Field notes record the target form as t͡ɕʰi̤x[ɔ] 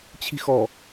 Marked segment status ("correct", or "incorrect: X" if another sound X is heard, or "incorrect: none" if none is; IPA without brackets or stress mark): correct